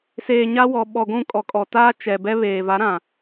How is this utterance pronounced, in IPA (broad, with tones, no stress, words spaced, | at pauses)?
seː˨ɲa˦wɔ˨ ɓɔ˨ɡʷũ˦˨kʼɔ˨kʼɔ˨ taː˦t͡ʃɛ˨bɛ˦ βeː˨va˨˦ɾã˨